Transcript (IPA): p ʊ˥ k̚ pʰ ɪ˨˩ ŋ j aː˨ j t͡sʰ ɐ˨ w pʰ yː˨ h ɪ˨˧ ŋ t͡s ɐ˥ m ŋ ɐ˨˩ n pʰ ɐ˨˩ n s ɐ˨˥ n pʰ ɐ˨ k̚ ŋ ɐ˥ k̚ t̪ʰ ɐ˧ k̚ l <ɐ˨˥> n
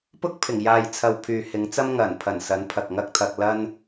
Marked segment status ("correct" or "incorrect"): incorrect